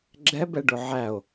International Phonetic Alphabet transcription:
ɡ͡ǁɛbɛɖʊ ʕæo̯

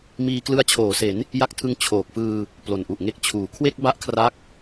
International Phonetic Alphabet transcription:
miː˧klɯ˧a̯t͡ɕʰoː˩˦se˩˦n | ja˦˥k̚tʰɯ˧ŋ t͡ɕʰoː˨˩k̚fɯː˧ | plo˨˩nʔu˨˩ʔŋe˦˥k̚ t͡ɕʰuː˨˩ kʰwe˥˩k̚ba˦˥ʔkʰra˦˥k̚

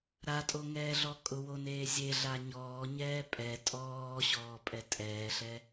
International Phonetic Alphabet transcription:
ɾatʼoŋɛːɮɔ kʼʊwoneː zʲeɮa ɲɔːɲɛː pʼɛ tʼɔːɕɔːpʼɛ tʼɛːɬɛ

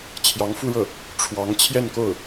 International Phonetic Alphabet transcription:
t͡ɕʰjɑ˧˥ŋ fu˥ɻɤ˥˩ | ʈ͡ʂʰwɑ˧˥ŋ t͡ɕʰjɛ˥˧nko˥˩ʊ̯

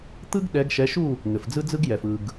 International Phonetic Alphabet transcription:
t̪ɯ˥ɡɗɛ˨˦ɡʃɛ˨˦ʃu˥˨ | ŋɘ˩fd͡zɯ˥d͡zɯ˥ɡjɛ˩f ɯ˩ɡ

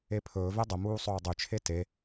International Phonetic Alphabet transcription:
epʰɵːve dˤəmuːsˤɵː dˤyt͡ʃʰe te

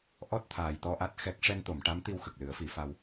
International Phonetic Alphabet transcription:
ʔɔ˦˥t̚ t̪ʰaː˨˩jt̪ɔ˧ʔa˦˥t̚ xɛ˦˥k̚ ʂɛ˧nt̪o˨˩˨mʈa˧˥mt̪i˧w xə˨˩k̚lɨ˨˩˦ə̯fi˨˩˦fa˧w

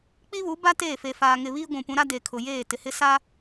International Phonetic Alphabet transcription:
k͡pi˦βu˨˦ba˦ teː˦˨fe˨faː˨ŋɪ˨ βiː˦ɡʷũ˨pũ˨˦ɾa˦ de˨kʰʊ˨ jeː˦˨tɪ˨hɪ˦ sa˦

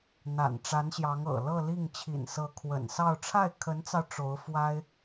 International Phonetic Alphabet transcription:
n̪a̰˨˩nʈ͡ʂa˧˥nɕjɑ˧˥ŋ ɤ̰˨˩ lɤ˥˧li˥˩ŋ t͡ɕʰḭ˨˩nsɤ˧˥kʰwə̰˨˩nsɑ˥˧ʊ̯ ʈ͡ʂʰa˥˩ɪ̯kʰə˧˥nt͡sɑ˧ʊ̯ ʈ͡ʂo˧˥ʊ̯fwa˥ɪ̯

